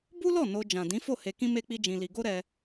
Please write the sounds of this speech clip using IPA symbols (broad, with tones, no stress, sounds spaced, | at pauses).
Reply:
b u˦ l ɔ˦˨ n o˧ d͡ʒ ã˨ d ĩ˨˦ f o˦˨ h e˧ k ĩ˦ m e˦ k͡p i˦ d͡ʒ ĩ˧ l i˧ ɡ o˦ ɾ ɛ˧